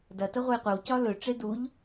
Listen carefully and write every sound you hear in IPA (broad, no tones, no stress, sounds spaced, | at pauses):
d ɐ t ə ʁʷ ə j qʷ ə w c ɒ l ɵ ʈ͡ʂ e d u ʎ